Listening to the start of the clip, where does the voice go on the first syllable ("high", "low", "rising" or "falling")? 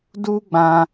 high